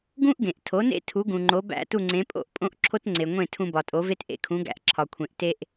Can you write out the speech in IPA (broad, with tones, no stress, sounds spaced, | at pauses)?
ɡ ũ˥ ʔ ɡ ẽ˩ ʔ tʰ o˩˥ n ḛ˥ tʰ u˩˥ ɡ ũ˩ ŋ͡ǃ o˩˥ b æ̰˥˩ t u˥˩ ŋ͡ǀ ẽ˩˥ pʼ o̰˥˩ ʔ pʼ õ˥ ʔ ǁʰ o˥ t ŋ͡ǀ e˩ ŋʷ ẽ˥˩ tʰ ũ˧ b ɒ˩ tʼ o˩˥ v e˥ t ʔ ḛ˥ kʰ ũ˩˥ ɡ æ̰˧ ʔ ǁʰ ɒ˩ kʷʰ ẽ˩ ʔ t e˧ ʔ